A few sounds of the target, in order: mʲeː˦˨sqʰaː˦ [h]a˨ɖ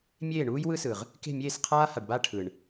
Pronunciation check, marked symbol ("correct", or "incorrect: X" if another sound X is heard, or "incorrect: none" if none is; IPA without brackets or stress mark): correct